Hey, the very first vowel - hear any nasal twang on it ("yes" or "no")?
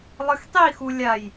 no